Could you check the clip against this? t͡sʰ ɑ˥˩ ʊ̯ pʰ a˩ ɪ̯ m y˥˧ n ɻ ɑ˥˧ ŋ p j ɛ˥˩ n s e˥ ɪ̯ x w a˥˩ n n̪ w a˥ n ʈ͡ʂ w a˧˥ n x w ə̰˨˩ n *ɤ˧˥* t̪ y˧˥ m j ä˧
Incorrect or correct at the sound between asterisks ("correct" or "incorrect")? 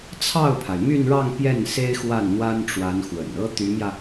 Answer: incorrect